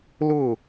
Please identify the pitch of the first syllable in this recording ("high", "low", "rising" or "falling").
falling